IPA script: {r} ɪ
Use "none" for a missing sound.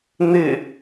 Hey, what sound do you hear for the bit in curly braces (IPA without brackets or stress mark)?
n̪